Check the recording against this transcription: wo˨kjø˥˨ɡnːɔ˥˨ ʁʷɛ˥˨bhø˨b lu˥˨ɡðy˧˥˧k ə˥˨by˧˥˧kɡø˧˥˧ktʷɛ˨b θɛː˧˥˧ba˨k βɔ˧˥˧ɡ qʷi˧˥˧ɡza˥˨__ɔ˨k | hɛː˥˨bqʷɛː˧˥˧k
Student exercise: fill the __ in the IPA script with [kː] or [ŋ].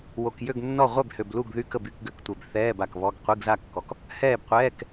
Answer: kː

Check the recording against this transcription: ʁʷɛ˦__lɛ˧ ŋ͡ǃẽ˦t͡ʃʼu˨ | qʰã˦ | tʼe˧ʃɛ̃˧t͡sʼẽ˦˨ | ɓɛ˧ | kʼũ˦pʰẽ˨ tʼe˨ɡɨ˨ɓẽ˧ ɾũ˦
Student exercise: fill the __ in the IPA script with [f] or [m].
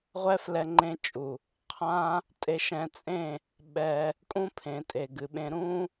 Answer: f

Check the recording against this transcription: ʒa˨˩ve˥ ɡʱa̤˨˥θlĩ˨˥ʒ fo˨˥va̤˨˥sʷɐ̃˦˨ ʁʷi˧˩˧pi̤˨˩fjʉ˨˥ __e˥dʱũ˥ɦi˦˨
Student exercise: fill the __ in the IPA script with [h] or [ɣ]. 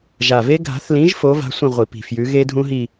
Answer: ɣ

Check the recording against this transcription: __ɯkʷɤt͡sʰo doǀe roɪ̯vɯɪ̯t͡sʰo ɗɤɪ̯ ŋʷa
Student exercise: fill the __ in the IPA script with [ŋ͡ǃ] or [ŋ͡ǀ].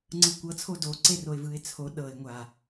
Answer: ŋ͡ǀ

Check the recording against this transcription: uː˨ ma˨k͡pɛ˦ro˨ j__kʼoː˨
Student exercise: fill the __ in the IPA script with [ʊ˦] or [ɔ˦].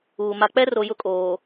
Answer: ʊ˦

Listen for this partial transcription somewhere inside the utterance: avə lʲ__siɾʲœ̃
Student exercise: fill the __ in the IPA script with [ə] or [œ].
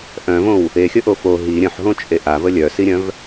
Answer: œ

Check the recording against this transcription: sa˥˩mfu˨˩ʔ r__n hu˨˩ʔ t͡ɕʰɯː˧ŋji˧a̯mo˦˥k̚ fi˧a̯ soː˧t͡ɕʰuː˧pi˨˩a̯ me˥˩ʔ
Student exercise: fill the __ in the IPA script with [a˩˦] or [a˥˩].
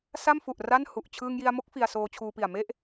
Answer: a˥˩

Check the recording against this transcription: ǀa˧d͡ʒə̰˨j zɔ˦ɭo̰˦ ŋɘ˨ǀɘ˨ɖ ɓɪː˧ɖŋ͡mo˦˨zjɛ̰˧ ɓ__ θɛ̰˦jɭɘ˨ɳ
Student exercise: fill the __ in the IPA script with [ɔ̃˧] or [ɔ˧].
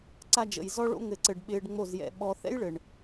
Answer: ɔ˧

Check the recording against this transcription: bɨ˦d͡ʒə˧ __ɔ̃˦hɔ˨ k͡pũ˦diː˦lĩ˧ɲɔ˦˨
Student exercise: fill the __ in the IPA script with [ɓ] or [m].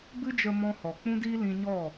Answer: m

